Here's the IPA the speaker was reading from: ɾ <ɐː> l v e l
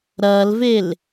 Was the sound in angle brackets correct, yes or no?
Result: yes